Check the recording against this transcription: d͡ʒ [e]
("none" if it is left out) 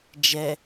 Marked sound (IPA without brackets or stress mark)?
ɛ